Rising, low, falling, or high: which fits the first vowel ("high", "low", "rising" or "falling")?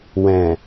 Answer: low